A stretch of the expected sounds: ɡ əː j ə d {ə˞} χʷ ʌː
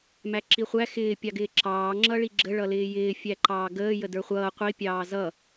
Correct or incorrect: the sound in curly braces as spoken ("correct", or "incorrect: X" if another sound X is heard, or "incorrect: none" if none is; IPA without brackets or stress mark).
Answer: correct